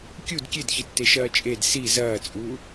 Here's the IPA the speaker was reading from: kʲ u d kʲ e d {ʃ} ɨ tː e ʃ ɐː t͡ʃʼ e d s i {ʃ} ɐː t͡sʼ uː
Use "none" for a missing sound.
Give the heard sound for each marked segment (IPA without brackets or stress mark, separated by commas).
ç, z